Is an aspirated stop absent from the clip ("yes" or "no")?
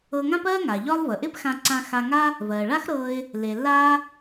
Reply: yes